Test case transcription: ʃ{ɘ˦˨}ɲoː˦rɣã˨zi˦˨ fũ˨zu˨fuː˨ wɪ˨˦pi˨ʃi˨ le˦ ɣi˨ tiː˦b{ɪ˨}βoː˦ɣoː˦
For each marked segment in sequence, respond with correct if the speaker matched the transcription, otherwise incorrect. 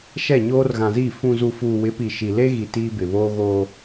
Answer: incorrect, correct

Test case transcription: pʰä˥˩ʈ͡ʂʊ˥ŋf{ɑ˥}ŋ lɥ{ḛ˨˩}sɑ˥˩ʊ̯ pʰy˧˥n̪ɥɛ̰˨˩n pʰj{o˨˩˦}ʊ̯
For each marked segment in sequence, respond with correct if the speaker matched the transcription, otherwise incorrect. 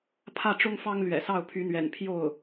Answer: correct, incorrect, incorrect

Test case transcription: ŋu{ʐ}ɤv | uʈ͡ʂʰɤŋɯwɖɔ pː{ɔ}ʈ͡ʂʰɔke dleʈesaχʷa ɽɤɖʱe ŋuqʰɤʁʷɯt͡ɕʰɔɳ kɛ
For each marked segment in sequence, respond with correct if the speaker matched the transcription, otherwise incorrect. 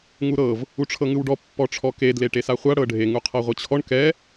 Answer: incorrect, correct

